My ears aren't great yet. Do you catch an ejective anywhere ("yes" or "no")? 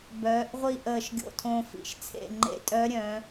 yes